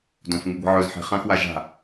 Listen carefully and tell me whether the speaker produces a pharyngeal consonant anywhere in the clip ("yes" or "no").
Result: yes